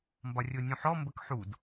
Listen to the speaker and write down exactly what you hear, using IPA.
m b ɒ rʲ o nʲ ũ ħ ɔ m b ə k ħ u d

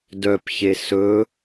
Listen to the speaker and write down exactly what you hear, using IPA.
d œ p ç e s ɵ

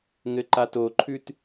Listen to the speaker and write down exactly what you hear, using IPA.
ŋ ɘ ǃ a t o ǃʰ ʉ t

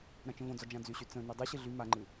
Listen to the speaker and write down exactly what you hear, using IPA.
ɾ ã t͡ʃ ə̃ v õ d͡z ɒ d͡ʒ ã d͡z y ɕ y t͡s ə̃ n y dˤ ɯ ɕ ɨ ɮ y m a ŋ͡ǃ ɨ

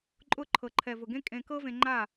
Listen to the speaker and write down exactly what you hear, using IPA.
ǃʼ ʊ˧ ǃʰ ɤ˨ ǃʰ ɛ˨ v ʊ˨ ɡ ẽ˦ kʼ ẽ˧ k ɤ˦ v ẽ˧ ŋ͡ǃ a˦˨

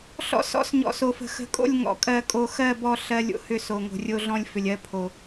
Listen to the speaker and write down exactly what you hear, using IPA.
ɬ ɔ̰˦ s ɔ̰˦ s ɲ ɔ̰˨ s o˨ f ə̤˨ x ə̤˨ kʼ o̰˦˨ lʲ ŋ ɔ̰˨ kʼ ɜ˨ kʼ o˨ x ɜ˦˨ b ɔ˦˨ ɬ ɜ˦ lʲ o̰˦ h ʏ˦ s o˨ ŋ o̤˨ rʲ o˦ ɮ ɔ̃˦ lʲ f ʏ˨ lʲ ɜ˦ pʰ o˨

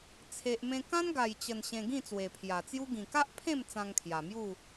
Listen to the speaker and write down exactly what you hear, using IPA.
t͡sʰ e˨ ʔ m ẽ˧ k ã˦ n ɡ a˨˩ j t͡ɕ ə˨˩ n ɕ ẽ˧ ɡ ĩ˥˧ t͡s w e˨˩ pʰ j a˨˩ t͡s j u˦ ɡ ĩ˨˩ k a˦ ʔ pʰ ẽ˥˧ m t͡s ã˧ ŋ kʰ j a˨˩ m j u˥˧

